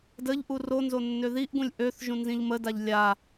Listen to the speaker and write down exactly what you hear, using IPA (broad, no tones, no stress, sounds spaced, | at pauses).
d ə ʎ ʔ u r o n z o nː ø ð i ʔ ɡ ũ lʲ ʔ ø θ ʒ ũ n z ĩ ʎ m ə d a ʎ lʲ a